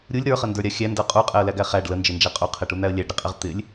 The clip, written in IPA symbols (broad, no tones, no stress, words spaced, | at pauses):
ɾʲulʲ ɾə˞χəndə˞ɾʲa xʲændə˞ qʼuqʼɛə̯læɡæ χæɖ lənd͡ʒɪnd͡ʒæ qʼuqʰɛʈun̪æə̯ lʲæɖɾɪqʼɛʁ t̪ɪlʲ